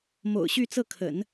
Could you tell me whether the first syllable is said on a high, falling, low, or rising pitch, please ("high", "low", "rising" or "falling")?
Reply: low